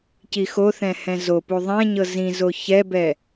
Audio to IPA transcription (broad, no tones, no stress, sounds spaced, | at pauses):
c i x o θ ɛ̃ h ɛ̃ z o p u ðˤ ɛ̃ ɲ ɤ z ĩ z o ç ɛ b ɛ